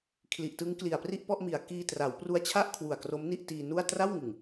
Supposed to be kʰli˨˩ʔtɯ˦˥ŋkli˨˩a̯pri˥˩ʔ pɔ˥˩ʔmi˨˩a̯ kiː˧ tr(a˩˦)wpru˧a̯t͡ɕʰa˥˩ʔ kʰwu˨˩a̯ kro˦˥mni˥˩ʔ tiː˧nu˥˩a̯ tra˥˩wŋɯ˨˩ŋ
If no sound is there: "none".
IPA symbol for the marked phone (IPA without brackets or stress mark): a˩˦